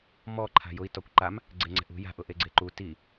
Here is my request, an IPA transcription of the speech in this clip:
mɔ ǃʰa̤jʊi̯ tɔkʷǃam | ɡ͡ǀeŋ͡ǀɛ̤ʔṳ ja̤ʔ ʊʔeɡ͡ǀeǃu ti

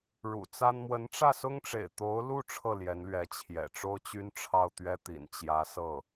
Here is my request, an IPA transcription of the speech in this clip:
ɻṵ˨˩ t͡sa˥n mwə˧˥nʈ͡ʂä˥˩sʊ˥ŋʈ͡ʂḛ˨˩ɪ̯ t̪o˧˥ʊ̯lu˥˧ ʈ͡ʂʰɤ˥˩ljɛ˧˥n lɥɛ˧˥t͡ɕʰjɛ̰˨˩ʈ͡ʂo˥ʊ̯t͡ɕy˥n ʈ͡ʂʰɑ˥˩ʊ̯t̪ɥɛ˥t̪ḭ˨˩n t͡ɕjä˧˥sɤ˥˩

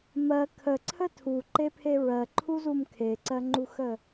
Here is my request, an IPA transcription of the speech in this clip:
mɜ kʰəǀʰə tʰuǃepʰe ɹɜǃʰuzum kʰeǀɜŋ͡ǃuxə

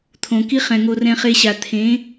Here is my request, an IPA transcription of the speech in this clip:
t̪ʰõ˨ki˦χɛ̃˨ ŋo˧rɛ̃˧χe˧ɕa˨ t̪ʰẽ˨˦

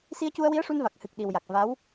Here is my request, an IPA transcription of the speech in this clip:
si˧ə̯cu˧ə̯wi˧˥ə̯ ʂu˧nva˨˩k̚ hɨ˨˩k̚ ɗi˨˩wja˨˩k̚ va˧˥w

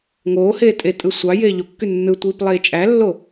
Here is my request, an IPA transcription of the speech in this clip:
ŋoːheː tʼetʼɯ sʷɑ jeːʎokːy nːɯtʷiːp lˠeːt͡ʃʼælːo

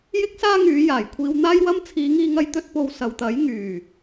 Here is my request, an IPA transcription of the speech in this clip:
jɪ˥k̚saː˥ŋyː˨˧ jaː˨˩jkʷʰiː˧wn̪aː˥jwɐ˥m t͡sʰiː˨˧ŋiː˧ŋɐ˧jt̪ɵ˧t̚ po˨w sɐ˨wt̪ɐ˨˥j ŋyː˨˩

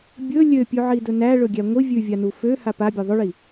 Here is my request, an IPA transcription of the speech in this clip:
bʲɵ lʲøpʲʉʕidɵ næɭɵɡʲæ ŋʷi vʲʉvʲanu føha pabʲɵ ðˤɵɭi

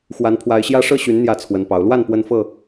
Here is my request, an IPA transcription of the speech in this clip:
xwa˨˦npʰwa˨˦ɪ̯ɕjä˦ ʂɤ˥˨ɕy˨˦n n̪jä˥˨t͡sʰwə˨˦npɑ˨˦ʊ̯ lwa˥˨n pwə˦n fɤ˥˨

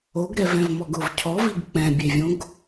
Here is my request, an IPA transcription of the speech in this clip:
oɡɾɛvɛ̃vmɔɡ ʊv cʰɔviɡ k͡pɛ̃bʲevʲõɡ

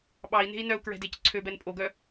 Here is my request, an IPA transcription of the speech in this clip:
ɓɑi̯ne̤i̯ nœu̯kɹɛ̤dec ǀʰøbɛn pʼoɡœ

